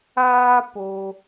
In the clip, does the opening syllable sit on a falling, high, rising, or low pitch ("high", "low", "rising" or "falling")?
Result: high